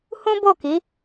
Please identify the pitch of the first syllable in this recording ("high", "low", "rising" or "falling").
high